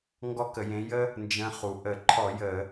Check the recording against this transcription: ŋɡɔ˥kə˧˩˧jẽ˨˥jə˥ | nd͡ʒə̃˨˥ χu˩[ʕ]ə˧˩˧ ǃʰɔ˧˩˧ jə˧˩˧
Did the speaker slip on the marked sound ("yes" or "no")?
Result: yes